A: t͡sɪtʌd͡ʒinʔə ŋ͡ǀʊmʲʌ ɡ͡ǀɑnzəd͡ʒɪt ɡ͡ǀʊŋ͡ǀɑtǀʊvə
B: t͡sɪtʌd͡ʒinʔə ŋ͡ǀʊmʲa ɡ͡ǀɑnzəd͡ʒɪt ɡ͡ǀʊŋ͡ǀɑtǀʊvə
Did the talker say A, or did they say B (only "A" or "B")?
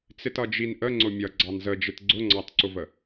A